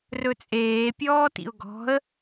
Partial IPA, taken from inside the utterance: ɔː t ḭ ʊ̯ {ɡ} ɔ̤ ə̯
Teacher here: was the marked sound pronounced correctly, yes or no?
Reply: yes